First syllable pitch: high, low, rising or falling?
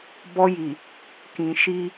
high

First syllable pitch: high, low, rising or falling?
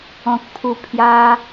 low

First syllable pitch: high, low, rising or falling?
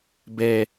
low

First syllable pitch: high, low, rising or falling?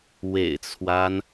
low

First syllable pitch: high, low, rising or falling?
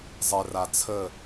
low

